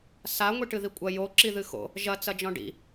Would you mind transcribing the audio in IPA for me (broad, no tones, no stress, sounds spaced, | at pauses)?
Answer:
s a ŋʷ i ʈ ɨ ð i kʷʼ ɐ j o ǁ i ð ɨ x o̰ | ʒ ɐ t͡s ɐ d͡ʒ ɔ̃ ɖ ḭ